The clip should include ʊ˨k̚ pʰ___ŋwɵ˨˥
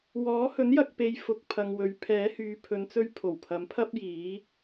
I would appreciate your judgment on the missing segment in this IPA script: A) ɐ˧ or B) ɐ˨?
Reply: B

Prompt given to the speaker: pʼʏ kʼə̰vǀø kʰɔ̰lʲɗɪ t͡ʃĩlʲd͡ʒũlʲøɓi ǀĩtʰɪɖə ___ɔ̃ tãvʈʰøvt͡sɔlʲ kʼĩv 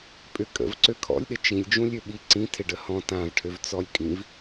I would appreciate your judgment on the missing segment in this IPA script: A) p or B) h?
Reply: B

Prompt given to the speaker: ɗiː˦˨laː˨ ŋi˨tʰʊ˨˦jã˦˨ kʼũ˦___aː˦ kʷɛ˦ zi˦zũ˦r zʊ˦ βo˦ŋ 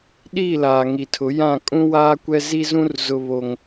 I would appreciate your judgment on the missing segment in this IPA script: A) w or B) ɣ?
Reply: A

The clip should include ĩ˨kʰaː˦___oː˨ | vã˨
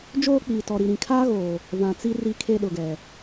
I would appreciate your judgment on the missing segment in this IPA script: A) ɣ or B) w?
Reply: A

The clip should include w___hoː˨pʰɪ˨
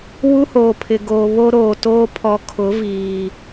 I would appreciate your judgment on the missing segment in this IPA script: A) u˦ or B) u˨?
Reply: A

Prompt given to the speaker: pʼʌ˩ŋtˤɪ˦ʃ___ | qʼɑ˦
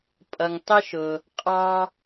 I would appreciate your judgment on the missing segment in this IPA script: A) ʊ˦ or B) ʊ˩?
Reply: B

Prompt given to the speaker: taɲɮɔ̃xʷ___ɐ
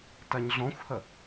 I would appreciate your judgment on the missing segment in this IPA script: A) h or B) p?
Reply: A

